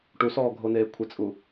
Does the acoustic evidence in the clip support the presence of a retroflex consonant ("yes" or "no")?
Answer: yes